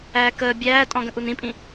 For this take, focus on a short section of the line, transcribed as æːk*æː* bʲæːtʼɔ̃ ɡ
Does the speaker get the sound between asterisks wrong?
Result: yes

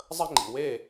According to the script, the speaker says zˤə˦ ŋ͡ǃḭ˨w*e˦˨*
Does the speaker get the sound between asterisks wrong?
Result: no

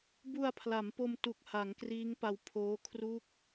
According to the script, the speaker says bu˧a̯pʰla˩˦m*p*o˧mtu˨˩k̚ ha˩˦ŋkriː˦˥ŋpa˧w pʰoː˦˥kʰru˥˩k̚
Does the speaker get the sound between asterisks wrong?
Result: no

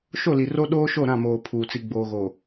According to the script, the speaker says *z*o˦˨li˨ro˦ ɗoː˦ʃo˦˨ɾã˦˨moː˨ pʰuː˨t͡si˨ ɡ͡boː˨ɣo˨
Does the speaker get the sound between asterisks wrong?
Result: yes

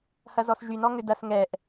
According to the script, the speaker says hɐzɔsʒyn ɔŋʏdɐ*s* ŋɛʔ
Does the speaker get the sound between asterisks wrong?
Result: no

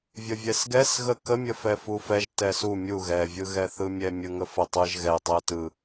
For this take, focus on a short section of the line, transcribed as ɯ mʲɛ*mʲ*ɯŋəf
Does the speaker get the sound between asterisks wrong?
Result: no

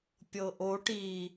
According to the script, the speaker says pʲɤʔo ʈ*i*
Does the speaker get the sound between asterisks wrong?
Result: no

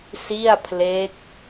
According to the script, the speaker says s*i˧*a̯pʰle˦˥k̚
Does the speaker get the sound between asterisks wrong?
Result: yes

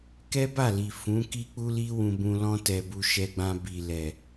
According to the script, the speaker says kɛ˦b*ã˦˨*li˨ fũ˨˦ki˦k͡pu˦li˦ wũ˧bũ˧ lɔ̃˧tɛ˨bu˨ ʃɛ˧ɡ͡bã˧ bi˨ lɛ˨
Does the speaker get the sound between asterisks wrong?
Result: yes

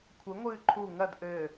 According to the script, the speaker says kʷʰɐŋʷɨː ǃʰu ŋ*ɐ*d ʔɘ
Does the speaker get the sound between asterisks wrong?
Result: no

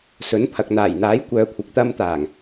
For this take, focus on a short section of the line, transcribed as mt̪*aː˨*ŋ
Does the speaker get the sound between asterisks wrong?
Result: yes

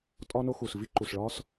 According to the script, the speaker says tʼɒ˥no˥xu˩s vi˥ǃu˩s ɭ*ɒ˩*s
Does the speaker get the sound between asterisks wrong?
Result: yes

